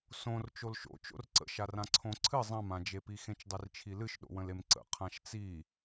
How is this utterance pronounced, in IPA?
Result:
s õ r t͡ʃ o l ʃ o̰ t͡ʃ o̰ r ǀ ə̰ ʃ a r ã ǀʰ õ ǀʰ ɨ zˤ ã m ã d͡ʒ e p i x ẽ t͡ʃ dˤ i r t͡ʃʰ i l ɨ ʃ ɗ o̰ w ə̃ l e m ǀ ə̰ qʰ ã ʃ t͡s i

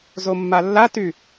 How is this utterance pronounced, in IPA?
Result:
z o mː a lː a t y

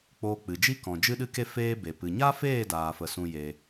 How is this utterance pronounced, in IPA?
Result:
k͡p oː˧ k͡p ɨ˨ d͡ʒ i˦ k ɔ̃˨ d͡ʒ ɨ˦ ɗ ɨ˦ k e˦ f eː˦ b e˨ p ɨ˨ ɲ a˦ f eː˦˨ d aː˧ f ə˧ s ũ˦ j e˧

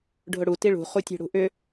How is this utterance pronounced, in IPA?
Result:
ɖʱ ʊ ɽ u t i ɭ ṳ χ u tʲ e̤ ɽ ṳ ʔ ʏ

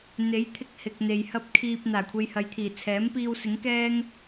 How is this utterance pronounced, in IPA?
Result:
n̪ e˨˥ j t̪ʰ ɪ˧ k̚ h ɪ˨ k̚ n̪ e˨ j h ɐ˥ p̚ kʰ iː˧ p̚ n̪ aː˨˩ kʷʰ e˧ j h ɐ˨˧ j t̪ʰ iː˨˩ t͡sʰ ɛː˨˥ m p iː˧ w s ɪ˨˥ ŋ k ɛː˥ ŋ

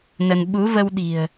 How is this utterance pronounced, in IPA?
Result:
n ə˧ n ɓ u˨˦ v ə˧ w ɗ i̤˨˩ ə̯

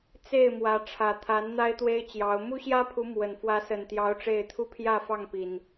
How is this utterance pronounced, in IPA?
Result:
t͡s e˥˨ ɪ̯ m w ä˨˦ ʈ͡ʂʰ ä˨˩ t̪ʰ a˨˦ n n̪ a˦ ɪ̯ t̪ w e˦ ɪ̯ t͡ɕ j ɑ˨˦ ʊ̯ m u˦ ɕ j ä˦ pʰ u˨˦ m w ə˨˩ n f w ä˨˦ s ə˨˩ n t̪ j ɑ˨˦ ʊ̯ ʈ͡ʂ e˥˨ ɪ̯ t̪ʰ u˦ pʰ j ä˥˨ f ɑ˥˨ ŋ p i˨˩ n

